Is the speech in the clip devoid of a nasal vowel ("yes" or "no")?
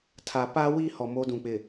no